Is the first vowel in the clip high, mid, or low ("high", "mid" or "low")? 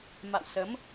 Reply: low